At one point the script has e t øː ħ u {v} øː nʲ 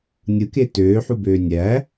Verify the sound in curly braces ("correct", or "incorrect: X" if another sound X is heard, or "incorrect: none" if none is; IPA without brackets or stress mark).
incorrect: b